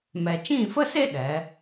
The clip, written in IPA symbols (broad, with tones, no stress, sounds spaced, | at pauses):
m ɛ˨ t͡ʃ ĩ˦˨ f ə˦ s e˦ ɗ ɛ˨˦